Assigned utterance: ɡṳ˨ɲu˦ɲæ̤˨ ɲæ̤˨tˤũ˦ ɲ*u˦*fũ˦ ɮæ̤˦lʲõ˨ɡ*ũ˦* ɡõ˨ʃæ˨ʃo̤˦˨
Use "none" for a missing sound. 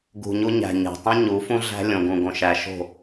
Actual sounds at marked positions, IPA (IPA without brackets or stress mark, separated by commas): u˨˦, ũ˨